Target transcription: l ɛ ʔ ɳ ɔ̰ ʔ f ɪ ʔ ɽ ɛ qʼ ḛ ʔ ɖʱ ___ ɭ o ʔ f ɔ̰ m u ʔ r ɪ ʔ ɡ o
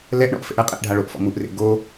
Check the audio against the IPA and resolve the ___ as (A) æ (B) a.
B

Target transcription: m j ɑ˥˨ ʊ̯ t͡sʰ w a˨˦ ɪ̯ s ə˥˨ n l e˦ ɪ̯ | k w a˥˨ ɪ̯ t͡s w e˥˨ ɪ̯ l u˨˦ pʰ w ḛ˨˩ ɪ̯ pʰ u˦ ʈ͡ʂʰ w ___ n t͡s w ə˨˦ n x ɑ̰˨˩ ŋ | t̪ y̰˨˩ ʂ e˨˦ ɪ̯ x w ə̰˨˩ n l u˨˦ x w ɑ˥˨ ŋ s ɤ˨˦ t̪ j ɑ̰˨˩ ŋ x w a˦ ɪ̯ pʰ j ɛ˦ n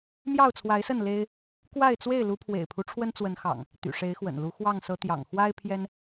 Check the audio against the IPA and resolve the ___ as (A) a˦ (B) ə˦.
B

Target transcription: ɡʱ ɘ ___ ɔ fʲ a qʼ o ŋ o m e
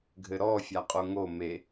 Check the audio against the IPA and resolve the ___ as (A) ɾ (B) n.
A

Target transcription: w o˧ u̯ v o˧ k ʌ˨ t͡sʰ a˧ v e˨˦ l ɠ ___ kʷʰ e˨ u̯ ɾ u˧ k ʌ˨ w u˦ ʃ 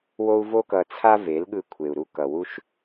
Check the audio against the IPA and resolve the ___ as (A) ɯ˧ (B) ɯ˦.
A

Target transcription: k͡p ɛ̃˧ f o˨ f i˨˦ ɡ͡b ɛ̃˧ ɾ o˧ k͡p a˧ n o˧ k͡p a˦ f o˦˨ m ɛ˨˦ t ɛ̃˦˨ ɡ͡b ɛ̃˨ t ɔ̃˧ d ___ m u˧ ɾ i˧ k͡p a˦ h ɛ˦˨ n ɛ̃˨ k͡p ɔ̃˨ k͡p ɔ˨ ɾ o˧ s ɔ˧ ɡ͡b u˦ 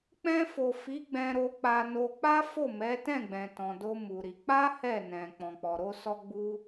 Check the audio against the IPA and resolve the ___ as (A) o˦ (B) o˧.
A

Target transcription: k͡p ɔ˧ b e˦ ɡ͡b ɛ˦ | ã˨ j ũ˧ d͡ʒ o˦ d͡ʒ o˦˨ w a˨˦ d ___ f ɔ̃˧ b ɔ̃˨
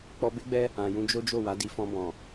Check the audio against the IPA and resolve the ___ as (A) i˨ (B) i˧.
B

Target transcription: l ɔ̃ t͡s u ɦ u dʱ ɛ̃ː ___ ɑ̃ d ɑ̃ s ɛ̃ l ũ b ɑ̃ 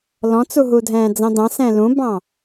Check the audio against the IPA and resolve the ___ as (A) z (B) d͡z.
B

